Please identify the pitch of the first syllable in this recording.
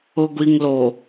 low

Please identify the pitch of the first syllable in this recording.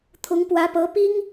rising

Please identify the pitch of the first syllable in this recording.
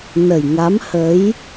low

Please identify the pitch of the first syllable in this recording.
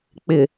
low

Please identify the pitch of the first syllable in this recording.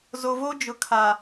low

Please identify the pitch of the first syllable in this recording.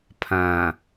low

